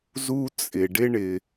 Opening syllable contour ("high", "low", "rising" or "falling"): high